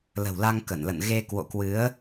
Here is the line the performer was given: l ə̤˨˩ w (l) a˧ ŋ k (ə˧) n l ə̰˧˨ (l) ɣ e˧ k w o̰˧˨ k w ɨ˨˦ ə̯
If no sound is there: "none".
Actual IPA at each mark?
l, ə˧˩, n

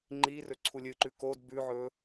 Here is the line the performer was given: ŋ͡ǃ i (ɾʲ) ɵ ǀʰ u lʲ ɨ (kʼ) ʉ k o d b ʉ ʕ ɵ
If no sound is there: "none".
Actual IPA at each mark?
r, ǃ

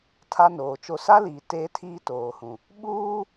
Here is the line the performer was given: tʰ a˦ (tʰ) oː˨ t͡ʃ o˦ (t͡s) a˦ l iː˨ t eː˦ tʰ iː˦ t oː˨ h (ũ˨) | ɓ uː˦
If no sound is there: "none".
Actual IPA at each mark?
n, s, ũ˨

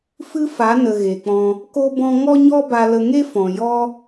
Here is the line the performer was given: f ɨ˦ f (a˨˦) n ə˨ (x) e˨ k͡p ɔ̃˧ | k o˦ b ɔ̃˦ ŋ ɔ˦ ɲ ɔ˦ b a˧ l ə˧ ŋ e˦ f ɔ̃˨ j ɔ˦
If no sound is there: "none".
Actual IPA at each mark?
a˨˦, ɣ

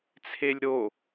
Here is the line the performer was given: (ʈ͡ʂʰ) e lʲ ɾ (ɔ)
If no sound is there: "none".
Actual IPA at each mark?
t͡sʰ, o

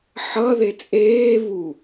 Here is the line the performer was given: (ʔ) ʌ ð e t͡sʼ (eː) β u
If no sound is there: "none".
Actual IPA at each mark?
ħ, eː

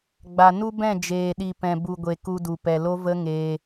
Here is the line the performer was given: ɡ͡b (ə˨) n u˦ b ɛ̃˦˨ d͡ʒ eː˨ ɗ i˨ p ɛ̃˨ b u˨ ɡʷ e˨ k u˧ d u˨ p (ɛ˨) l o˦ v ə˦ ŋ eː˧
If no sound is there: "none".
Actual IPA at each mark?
a˨, ɛ˨

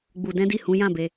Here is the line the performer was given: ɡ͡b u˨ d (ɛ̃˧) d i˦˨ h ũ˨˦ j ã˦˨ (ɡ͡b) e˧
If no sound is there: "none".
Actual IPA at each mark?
ɛ̃˨˦, b

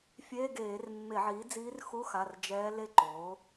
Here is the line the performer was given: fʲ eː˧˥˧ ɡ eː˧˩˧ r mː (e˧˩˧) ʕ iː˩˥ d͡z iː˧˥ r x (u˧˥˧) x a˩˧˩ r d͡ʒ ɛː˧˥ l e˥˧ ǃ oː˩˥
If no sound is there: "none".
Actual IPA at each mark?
e˧˩˧, u˧˥˧

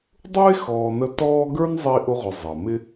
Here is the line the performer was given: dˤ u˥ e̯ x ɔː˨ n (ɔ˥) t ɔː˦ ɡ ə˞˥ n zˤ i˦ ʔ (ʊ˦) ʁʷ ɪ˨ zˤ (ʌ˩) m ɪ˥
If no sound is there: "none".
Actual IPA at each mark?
ə˥, ʊ˦, ʌ˩

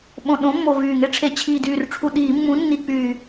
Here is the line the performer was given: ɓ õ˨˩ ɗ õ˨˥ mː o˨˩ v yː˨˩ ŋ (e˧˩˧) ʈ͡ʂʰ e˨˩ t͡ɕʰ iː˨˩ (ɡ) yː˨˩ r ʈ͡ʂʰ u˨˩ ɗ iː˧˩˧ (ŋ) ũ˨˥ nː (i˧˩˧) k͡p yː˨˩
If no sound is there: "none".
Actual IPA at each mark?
e˦, d, mː, i˧˩˧

